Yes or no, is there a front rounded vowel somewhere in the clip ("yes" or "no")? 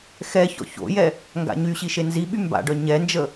yes